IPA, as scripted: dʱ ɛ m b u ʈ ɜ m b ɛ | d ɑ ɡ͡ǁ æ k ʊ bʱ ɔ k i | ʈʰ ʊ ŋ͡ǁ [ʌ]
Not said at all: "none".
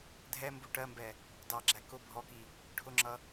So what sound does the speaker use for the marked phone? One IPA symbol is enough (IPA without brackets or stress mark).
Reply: ʌ